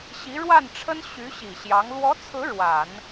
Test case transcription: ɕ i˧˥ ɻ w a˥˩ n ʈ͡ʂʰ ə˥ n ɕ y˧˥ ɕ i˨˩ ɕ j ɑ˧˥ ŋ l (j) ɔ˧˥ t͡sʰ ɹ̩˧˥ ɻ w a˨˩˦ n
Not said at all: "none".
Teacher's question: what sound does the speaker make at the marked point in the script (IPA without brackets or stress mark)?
w